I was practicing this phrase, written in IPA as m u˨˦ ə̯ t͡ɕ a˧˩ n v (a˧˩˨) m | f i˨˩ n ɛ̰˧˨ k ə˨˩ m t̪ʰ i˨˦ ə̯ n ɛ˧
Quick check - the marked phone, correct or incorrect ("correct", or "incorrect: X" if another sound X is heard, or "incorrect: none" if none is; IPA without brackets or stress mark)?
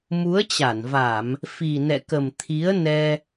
correct